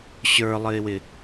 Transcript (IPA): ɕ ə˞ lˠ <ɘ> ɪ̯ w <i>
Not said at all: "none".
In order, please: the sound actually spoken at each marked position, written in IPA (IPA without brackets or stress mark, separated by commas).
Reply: ɘ, ɪ